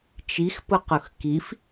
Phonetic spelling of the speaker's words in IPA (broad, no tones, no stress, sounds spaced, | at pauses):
t͡ʃ i x p ʊ q ʊ x k i f